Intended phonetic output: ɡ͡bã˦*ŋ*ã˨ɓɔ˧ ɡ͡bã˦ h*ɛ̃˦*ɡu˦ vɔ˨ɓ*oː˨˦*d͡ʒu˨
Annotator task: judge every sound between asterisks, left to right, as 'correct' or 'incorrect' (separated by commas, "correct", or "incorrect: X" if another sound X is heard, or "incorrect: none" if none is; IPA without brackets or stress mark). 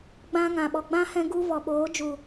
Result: correct, correct, correct